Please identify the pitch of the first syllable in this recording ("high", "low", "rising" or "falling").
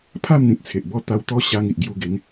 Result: falling